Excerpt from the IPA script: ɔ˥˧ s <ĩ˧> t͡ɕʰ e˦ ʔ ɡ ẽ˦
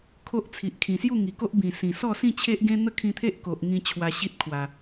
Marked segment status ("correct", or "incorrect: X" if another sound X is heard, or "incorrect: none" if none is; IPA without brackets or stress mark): incorrect: ĩ˥˧